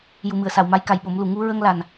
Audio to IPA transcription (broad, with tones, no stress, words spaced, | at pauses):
ju˨˩mɨ˨˩˨ə̯sa˨˩˨w ma˧˥jka˨˩jɓo˨˩˦mlu˨˩ ŋu˧ɹə˧ŋ la˨˩n